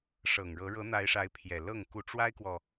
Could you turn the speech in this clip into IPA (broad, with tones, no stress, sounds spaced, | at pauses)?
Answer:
ʂ ɤ˨˩ ŋ ɻ ɤ˧˥ ɻ ɤ˧˥ n̪ a˧˥ ɪ̯ ʂ a˧˥ ɪ̯ pʰ j ɛ˨˩ l ɤ˥˩ ŋ k u˧˥ ʈ͡ʂ w a˥ ɪ̯ k w ɔ˨